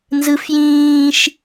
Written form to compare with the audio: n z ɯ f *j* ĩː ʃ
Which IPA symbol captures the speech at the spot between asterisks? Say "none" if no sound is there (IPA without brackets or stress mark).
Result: j